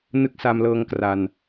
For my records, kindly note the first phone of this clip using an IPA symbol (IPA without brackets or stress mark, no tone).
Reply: n